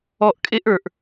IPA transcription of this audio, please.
ɔ˧ ʔ kʼ e˦ ʔ ə˞˧ ʔ

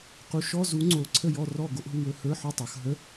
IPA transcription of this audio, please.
q u˨˦ ʃ ɔ˧˥˧ z u˨˦ ŋ͡ǀ o˨˦ ǀʰ ə˦˨ j ɔ˦˨ r ɔ˦˨ ɡ o˧˥˧ ʔ ɦ u˦˨ w ɵ˦˨ h ə˞˧˥˧ ħ o˦˨ tˤ ə˞˨˦ x ɦ ə˧˥˧

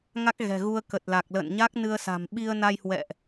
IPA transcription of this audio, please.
ŋ a˦˥ k̚ ɣ ɛ̤˨˩ ɣ u˧ ə̯ k ə˨˩ t̚ l a˨˩ k̚ l ə̰ː˧˨ n ɲ a˦˥ k̚ n ɨ˧ ə̯ s a̤˨˩ m ɓ i˧ ə̯ n a˧ j h w ɛ̰˧˨ ʔ

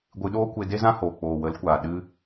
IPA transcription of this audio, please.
ɡʷ ɨ˧ ɗ oː˦ kʷ e˧ d e˦ z ã˦ h oː˨ k͡p oː˨ w ə˨˦ l kʷ aː˨ ɗ ɨ˦

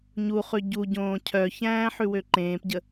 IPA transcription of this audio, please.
ɲ u χ ʉ ɟ u ɟ õː cʰ œ ç æ̃ː ħ ʉ w ø ǃ ẽː p ɟ ə

